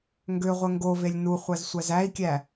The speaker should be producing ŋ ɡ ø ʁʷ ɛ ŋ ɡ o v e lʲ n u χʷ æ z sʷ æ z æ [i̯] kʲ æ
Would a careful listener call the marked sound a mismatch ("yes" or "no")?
no